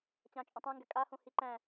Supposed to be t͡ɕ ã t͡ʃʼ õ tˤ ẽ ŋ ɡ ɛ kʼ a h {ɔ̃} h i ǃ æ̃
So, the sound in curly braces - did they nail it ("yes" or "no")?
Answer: no